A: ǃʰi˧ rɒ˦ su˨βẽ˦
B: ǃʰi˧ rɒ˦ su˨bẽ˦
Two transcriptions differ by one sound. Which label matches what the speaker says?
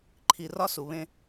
A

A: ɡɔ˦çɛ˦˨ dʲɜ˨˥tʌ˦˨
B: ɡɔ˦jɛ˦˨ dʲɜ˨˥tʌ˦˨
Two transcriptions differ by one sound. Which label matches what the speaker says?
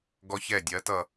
A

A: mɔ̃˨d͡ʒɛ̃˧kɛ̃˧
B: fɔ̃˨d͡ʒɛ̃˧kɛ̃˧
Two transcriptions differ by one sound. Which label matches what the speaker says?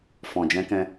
B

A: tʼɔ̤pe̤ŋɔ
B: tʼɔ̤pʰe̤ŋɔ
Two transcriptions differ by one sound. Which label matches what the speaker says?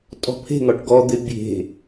B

